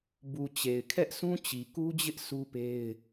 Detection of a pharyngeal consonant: absent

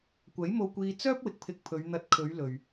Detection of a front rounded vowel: present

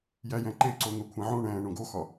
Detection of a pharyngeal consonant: present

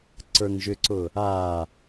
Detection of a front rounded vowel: present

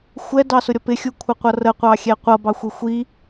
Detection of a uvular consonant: present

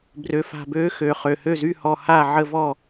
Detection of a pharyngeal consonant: present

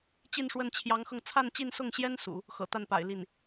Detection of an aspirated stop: present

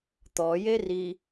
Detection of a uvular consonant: absent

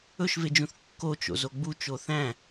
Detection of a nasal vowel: present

